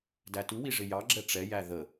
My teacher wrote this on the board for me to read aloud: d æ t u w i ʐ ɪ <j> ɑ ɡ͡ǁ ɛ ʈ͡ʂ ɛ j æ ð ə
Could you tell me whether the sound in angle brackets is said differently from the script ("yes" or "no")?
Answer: no